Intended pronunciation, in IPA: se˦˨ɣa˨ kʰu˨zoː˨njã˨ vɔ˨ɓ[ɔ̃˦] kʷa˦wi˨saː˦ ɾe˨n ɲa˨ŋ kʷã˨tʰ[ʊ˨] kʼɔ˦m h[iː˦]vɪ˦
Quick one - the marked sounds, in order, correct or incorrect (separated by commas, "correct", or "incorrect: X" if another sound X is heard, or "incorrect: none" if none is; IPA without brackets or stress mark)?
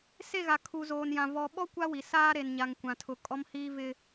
incorrect: ɔ˦, correct, correct